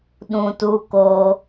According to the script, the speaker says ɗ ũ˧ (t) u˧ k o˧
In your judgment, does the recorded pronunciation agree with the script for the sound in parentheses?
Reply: yes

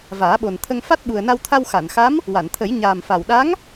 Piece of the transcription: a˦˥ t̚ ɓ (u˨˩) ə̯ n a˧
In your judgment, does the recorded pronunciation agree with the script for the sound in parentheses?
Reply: yes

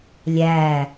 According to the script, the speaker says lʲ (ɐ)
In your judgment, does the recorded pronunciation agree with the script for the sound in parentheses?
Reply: no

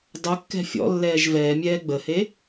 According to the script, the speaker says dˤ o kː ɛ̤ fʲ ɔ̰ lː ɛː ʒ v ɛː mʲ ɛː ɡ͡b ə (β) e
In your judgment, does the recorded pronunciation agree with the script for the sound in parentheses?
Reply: no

